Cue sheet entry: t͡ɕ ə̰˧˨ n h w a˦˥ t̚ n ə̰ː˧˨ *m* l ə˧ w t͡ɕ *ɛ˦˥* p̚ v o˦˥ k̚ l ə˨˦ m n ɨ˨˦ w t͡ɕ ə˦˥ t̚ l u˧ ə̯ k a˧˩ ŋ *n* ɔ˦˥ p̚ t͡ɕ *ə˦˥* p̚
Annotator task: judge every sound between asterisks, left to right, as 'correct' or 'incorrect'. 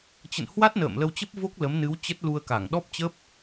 correct, incorrect: ə˦˥, incorrect: ɗ, correct

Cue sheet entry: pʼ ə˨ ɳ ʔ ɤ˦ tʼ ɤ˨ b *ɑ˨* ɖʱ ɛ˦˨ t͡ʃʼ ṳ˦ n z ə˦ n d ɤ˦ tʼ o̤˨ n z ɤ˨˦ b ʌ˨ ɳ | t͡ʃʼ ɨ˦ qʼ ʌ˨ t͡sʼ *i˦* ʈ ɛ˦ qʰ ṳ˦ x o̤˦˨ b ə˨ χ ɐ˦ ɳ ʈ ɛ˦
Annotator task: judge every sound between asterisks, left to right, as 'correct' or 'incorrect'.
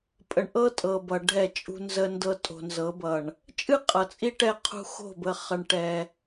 incorrect: ʌ˨, correct

